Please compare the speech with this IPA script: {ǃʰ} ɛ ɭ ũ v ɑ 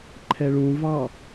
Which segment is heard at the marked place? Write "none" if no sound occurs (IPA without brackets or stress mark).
ǃʰ